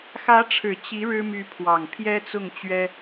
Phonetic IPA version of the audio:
x ä˧˥ ʈ͡ʂʰ ɻ̩˨˩ t͡ɕ i˧˥ ɻ ɻ̩˥ m y˧˥ pʰ w ɑ˨˩ ŋ pʰ j ɛ˥ t͡s ʊ˥˩ ŋ t͡ɕ ɥ ɛ˥

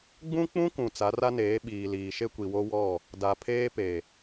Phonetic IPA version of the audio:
ɡ͡b ũ˦ k͡p ũ˦ k ũ˨ t͡s a˨˦ r a˦ n eː˨˦ ɓ iː˨ l iː˨ ʃ e˦ kʷ i˨ w o˦ w ɔ˦˨ | d a˨ pʰ eː˦ p e˨

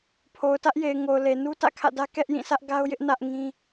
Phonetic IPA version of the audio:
pʰ o˨ ʊ̯ t ä˦ ʔ j e˨ ɪ̯ ŋ o˨ ʊ̯ l e˨ n u˦ t ä̰˦˨ kʰ ä̰˦˨ d ä˦ k ɛ˦ ʔ j ĩ˦˨ s ä˦ ʔ ɡ a˦ ʊ̯ j ɪ˦ ʔ n ä˦ ʔ ŋ ĩ˦

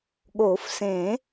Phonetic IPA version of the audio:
ɠ o˨˩˦ f s ẽ˨˩˦

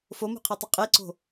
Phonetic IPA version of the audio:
f o m ṳ qʰ e tˤ ʏ qʼ e ǀ o̤

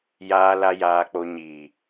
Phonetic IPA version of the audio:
j aː˨ l a˨ j aː˨ k͡p o˨ ɲ iː˨

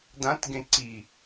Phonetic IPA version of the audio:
d ã t ɡ ẽ ǀ i

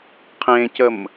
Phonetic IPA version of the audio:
qʰ ẽ c ə m

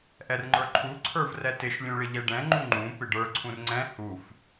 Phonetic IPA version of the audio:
ʔ ɛ r ŋ͡ǃ ə˞ ǃʰ u ǀʰ ə˞ v r ɛ t ɪ ʃ lʲ ũ ɭ ɪ ʎ ɛ ɖ ɛ̃ ŋ͡ǃ ũ ŋ͡ǃ ũ p ɪ ɖ ə˞ ǀʰ ũ r ŋ͡ǀ ɛ̃ h u f

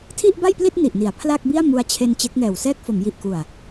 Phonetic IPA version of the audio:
tʰ i˥˩ ʔ b a˥˩ j p l i˥˩ t̚ n i˨˩ ʔ n i˩˦ a̯ pʰ l a˥˩ k̚ b i˥˩ a̯ m u˧ a̯ t͡ɕʰ e˧ n t͡ɕ e˦˥ k̚ ŋ ɛː˨˩ w s ɛː˥˩ k̚ f o˩˦ m j i˨˩ ʔ k u˨˩ a̯

